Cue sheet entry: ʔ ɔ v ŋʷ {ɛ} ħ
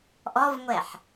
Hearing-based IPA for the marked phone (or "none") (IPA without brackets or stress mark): ɛ